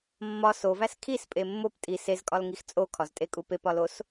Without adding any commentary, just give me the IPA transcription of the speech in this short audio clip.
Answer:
mːɒ sovæs kʰispʼe mːop tʼi sezkʼɒlŋix t͡sʼokʰɒztʼekʼu pepɒlos

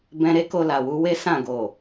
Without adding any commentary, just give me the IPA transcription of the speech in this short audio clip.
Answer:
bɛ̃˧ɾe˦ko˧ la˨wu˧ we˦ sã˦˨ɡo˨

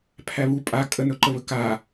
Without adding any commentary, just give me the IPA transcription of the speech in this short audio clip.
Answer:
pʰæβu pʼa kʼənɵǃəβə ka

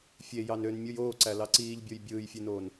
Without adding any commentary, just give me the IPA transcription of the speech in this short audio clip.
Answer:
fʲejɑn ønmʲɯj oːǀælɑ ǀiːʎbʲoj bʲɯːjfʲenoːn

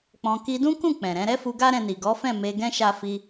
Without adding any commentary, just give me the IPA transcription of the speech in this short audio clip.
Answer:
k͡pɔ̃˧ ki˧dũ˦kũ˦˨ k͡pɛ̃˨ɾɛ̃˨˦ ɾɛ˦fu˧ ɡa˦ ɾɛ̃˧ni˨ ɡɔ˨˦fɛ̃˦˨ me˧ɡɛ̃˦ ʃa˧fi˧

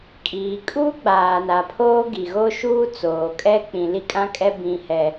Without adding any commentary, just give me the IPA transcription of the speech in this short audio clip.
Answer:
kʼiː˨kʼuː˦ ɡ͡baː˨na˨pʰoː˦ ɡi˨ ɣo˦ʃuː˦t͡soː˨kʼɛ˦ k͡pĩ˨li˦kʼã˦kʼɛ˦ bĩ˦hɛ˦

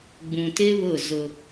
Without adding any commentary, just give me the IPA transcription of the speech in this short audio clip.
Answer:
ɡ͡bũ˨tɪ˦ βʊ˦˨zʊ˦

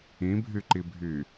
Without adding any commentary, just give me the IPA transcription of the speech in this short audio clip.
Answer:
ĩbʱyǃibʱy

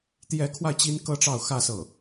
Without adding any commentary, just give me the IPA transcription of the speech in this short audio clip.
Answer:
t̪jɛ˧˥kʰwa˧ɪ̯ t͡ɕi˥nkɤ˥ʈ͡ʂɑ˥˧ʊ̯ xä˥˧ sɤ˥˩

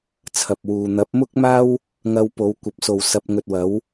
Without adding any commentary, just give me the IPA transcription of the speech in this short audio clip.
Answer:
t͡sʰɐ˨p̚wuː˨ n̪ɐ˨˥p̚mʊ˥k̚maː˥w | ŋɐ˧wpo˨˧w kʷɐ˨˥p̚so˨w sɐ˧p̚ŋɵ˧t̚wɐ˨˥w

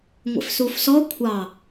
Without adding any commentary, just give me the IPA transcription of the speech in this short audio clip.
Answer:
ŋʷḛfsufsɔ kʷʰɑ

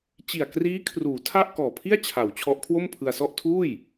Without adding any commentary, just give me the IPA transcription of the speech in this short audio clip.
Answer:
t͡ɕi˨˩a̯kriː˦˥kʰruː˩˦ tʰa˥˩ʔkɔː˨˩pʰi˥˩a̯t͡ɕʰa˩˦w t͡ɕʰɔ˦˥ʔkʰwo˥˩mpʰɯ˧a̯sɔ˥˩ʔ tʰuː˥˩j

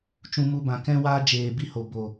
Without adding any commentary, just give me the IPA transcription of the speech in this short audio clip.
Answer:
t͡ʃũ˧mu˧ bã˨kɛ̃˦waː˦ d͡ʒeː˨bi˦ho˨ bo˨

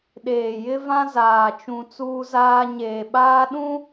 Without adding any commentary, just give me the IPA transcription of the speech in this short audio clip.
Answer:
ɗeː˨jɪ˦vã˦ zaː˨t͡ʃũ˨ t͡suː˦zaː˦ ɲeː˨ɓaː˦ɗũ˦

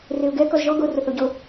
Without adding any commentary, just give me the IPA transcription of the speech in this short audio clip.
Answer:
reʊ̯ɡɛ kɔzʒɔ ɡo rʊθoɟo

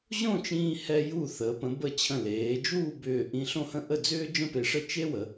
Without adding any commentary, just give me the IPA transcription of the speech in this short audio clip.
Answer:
ʑõ˥˧t͡ʃĩː˧hɛ˧ ju˧˩θəː˩˧pə̃˩˧bə˧˩ t͡ɕʰə̃˧˩leː˩˧d͡ʒuː˥˧ bʏː˧˩ ʔĩ˧ɬõ˥˧hə̃˥˧ ʔə˥˧d͡zʏː˥ d͡ʒə̃˥pe˧ʂə˥ t͡ʃe˥wə˩˧

